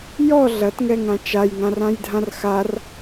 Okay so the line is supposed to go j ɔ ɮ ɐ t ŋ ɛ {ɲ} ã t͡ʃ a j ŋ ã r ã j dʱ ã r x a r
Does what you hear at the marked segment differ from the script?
yes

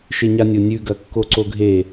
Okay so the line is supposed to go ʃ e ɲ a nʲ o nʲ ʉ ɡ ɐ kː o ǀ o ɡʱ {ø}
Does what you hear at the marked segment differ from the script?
yes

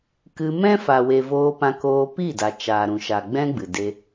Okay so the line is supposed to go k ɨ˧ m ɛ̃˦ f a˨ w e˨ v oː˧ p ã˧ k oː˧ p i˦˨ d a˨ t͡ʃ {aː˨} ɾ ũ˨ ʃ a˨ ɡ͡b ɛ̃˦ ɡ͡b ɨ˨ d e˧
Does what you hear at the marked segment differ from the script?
no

